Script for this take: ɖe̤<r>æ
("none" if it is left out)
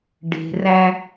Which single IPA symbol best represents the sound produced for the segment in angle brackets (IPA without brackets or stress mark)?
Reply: r